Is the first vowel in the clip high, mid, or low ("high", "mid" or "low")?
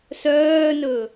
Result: mid